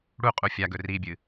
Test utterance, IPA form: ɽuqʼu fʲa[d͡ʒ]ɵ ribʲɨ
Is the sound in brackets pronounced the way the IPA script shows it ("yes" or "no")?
no